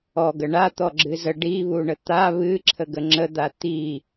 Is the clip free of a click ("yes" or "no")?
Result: no